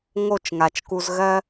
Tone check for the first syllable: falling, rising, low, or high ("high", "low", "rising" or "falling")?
falling